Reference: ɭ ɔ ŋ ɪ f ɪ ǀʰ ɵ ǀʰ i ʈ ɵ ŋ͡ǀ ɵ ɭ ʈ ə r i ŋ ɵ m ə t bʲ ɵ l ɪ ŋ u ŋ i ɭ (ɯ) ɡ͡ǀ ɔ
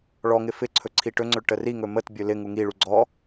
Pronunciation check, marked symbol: incorrect: u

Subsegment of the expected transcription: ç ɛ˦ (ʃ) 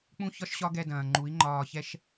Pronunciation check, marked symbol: correct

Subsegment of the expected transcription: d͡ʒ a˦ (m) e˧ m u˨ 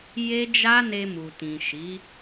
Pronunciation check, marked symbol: incorrect: n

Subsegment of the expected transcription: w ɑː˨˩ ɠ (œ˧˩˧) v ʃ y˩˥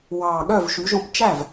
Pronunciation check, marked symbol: incorrect: œ˥˩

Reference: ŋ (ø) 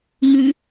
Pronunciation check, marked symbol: incorrect: ʉ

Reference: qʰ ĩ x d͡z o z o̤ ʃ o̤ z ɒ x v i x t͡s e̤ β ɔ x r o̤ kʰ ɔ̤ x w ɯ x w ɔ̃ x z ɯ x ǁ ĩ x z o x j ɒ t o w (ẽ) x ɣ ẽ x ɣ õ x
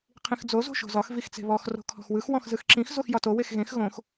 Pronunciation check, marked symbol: incorrect: e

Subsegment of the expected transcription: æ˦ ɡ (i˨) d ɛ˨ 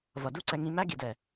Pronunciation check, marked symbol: correct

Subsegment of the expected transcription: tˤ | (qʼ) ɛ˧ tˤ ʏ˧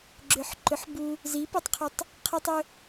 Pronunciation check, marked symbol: incorrect: qʰ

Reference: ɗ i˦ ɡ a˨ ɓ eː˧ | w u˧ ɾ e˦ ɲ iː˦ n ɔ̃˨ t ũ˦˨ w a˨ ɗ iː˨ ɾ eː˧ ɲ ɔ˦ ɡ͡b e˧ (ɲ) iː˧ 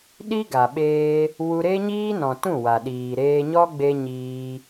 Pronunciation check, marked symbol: correct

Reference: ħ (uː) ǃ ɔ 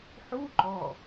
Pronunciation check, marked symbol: incorrect: u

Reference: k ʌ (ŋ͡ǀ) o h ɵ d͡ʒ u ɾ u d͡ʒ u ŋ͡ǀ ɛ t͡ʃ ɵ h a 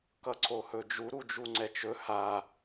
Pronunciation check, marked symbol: incorrect: ǀʰ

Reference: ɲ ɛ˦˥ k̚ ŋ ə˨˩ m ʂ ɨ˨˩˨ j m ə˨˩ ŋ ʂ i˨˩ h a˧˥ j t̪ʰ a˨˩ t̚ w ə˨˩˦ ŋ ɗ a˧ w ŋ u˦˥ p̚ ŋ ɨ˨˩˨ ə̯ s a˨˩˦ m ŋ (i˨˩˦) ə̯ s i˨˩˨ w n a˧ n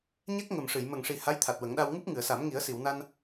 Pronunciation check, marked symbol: correct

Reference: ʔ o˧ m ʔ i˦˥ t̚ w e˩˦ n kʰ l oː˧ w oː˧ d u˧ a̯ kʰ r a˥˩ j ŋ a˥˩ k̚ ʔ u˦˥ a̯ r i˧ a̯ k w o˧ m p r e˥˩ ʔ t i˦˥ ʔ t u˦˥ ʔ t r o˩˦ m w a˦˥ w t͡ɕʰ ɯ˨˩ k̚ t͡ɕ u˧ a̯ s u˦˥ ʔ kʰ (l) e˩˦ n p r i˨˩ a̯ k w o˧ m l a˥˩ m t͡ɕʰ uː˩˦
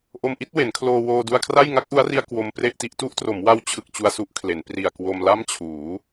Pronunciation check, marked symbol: correct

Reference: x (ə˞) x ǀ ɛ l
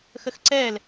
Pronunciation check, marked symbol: incorrect: ə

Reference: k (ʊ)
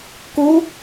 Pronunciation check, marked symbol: incorrect: u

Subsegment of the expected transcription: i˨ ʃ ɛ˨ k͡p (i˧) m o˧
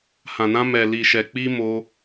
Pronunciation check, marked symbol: correct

